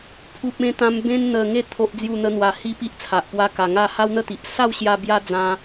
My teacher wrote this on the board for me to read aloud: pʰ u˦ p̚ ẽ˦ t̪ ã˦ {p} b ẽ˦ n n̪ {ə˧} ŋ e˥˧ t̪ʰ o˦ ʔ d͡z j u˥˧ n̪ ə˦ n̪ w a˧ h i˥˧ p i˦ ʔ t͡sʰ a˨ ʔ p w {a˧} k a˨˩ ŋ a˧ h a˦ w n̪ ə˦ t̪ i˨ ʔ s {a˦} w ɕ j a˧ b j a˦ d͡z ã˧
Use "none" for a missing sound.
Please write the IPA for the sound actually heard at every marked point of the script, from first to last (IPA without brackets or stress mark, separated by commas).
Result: m, ə˧, a˧, a˥˧